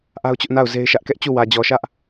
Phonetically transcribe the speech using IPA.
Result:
ʔ a˦ ʊ̯ t͡ɕ ʊ˦ ʔ n a˦˨ ʊ̯ z e˦ ɪ̯ ʃ ä˦ ʔ k ɛ˦ ʔ t͡ɕ u˦˨ w ä˨ d͡ʑ ɔ˨ ʃ ä˦ ʔ

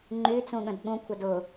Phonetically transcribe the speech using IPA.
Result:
ŋ͡ǃ y t͡s ũ ɠ ə̃ d ɠ ũ kʷʰ ɛ d ʊ

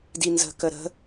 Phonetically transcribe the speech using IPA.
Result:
d i n z ə̤ k ə ɾ ə̤

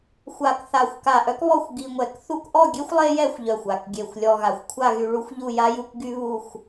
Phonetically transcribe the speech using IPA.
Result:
xʷ a˧˩ k θ a˧˩ xʷ k a˧˩ ʔ œ˥ k β ɔ˥˧ xʷ ɡ i˧ ŋʷ ɛ˧˩ k θ u˥ k ʔ ɔ˥˧ ɡʲ e˥ xʷ lˠ e˥ j ɛ˥˧ xʷ ʎ œ˧˩ xʷ a˧˩ k ɡʲ e˧˩ xʷ lʲ ɔ˧ ɣ a˧˩ xʷ kʷʰ a˥˧ ɣ y˧ ɭ u˥ xʷ ʎ u˥˧ j a˥ j u˥ k ɡ y˥ β u˥˧ xʷ

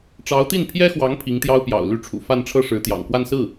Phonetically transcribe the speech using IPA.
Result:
ʈ͡ʂ ɑ˧˥ ʊ̯ t̪ i˥˩ n pʰ j ɛ˥ x w ɑ˧˥ ŋ pʰ i˧˥ ŋ t̪ j ɑ˥ ʊ̯ p j ɑ̰˨˩ ʊ̯ l y˥˩ ʈ͡ʂʰ ṵ˨˩ f a˥˧ n ʈ͡ʂʰ ɤ˥˩ ʂ ɻ̩˧˥ t̪ j ɑ̰˨˩ ŋ k w a˥˧ n s ɹ̩˥˩

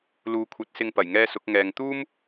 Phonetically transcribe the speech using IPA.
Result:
l uː˨˥ kʷʰ ɐ˨˥ t̚ s ɪ˧ ŋ p ɐ˨˩ j ŋ ɛː˥ s ʊ˨˥ k̚ ŋ ɛː˨ ŋ t̪ uː˥ m

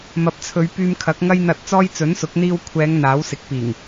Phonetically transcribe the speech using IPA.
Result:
m ɐ˨˥ p̚ t͡sʰ ɵ˨˧ ɥ p yː˧ m kʰ ɐ˨˥ k̚ ŋ ɐ˥ j n̪ ɐ˧ t̚ t͡s ɔː˥ j t͡s ɵ˨˥ n s ʊ˨˥ k̚ n̪ iː˧ w kʷʰ ɛː˨˧ ŋ n̪ aː˨˥ w s ɪ˨˥ k̚ p iː˨˩ ŋ

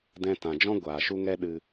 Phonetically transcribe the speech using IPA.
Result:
d ɛ̃˧ t ã˨ d͡ʒ ɔ̃˦ ɡʷ aː˨ ʃ u˦ ŋ ɛ˦ ɗ ɨ˦

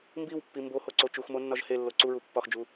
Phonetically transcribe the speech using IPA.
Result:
m b i w pː i m b o h o ǀ o t͡ʃ u x m o nː ɒ ʒ h e lː o ǀ u ɹ u pː ɒ x d͡ʒ u

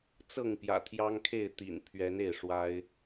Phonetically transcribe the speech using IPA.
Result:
t͡s ɤ˥˨ ŋ p j ä̰˨˩ t̪ʰ j ɑ˦ ŋ kʰ e˥˨ ɪ̯ t̪ ḭ˨˩ n pʰ ɥ ɛ˨˦ n e˥˨ ɪ̯ ʂ w a˦ ɪ̯

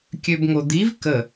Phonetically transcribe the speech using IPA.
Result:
kʲ ø b ŋ o d̪ i v k ə

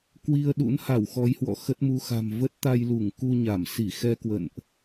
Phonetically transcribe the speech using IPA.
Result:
k w i˧ ə̯ ɗ ṵ˧˥ n h a˧˩ w x ɔ˨˦ j h w ɔ̰˧˨ x ə˦˥ t̚ m u˧ x a̤˨˩ m v ə˦˥ t̚ t̪ a˧ j l u˧˩ ŋ k u˧ ɲ a˧˩ m s i˧˩ x ɛ˧ k w ə̰˧˨ n ʔ

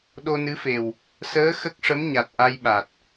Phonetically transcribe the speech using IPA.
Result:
ɗ o˧ n ɨ˧˥ f e˨˩ w | s əː˧˥ x ə˦˥ k̚ ʂ ə˧˥ m ɲ a˨˩ t̚ ʔ a˧ j ɓ a˨˩ t̚

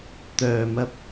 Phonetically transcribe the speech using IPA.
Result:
t̪ œː˨ m ɐ˧ p̚

